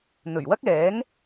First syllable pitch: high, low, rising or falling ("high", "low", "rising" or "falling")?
low